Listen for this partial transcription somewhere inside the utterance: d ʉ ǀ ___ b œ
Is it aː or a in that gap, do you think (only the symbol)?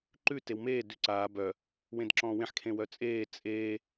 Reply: aː